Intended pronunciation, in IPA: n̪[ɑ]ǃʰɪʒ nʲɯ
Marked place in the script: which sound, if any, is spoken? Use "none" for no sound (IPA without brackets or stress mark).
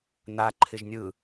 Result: a